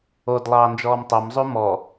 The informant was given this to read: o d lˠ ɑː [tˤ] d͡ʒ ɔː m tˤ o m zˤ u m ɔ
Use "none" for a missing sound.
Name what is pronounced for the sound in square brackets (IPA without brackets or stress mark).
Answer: n